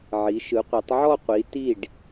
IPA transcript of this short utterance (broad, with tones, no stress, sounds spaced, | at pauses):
ʕ i˩˧ ʃ ɯ˩˧ qʷ i˩˧ tˤ ʕ ɔ˥˧ qʷ i˩˧ t i˧˩ ɖ